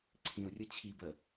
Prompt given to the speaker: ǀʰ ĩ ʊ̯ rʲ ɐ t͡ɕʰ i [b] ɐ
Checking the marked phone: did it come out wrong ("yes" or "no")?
no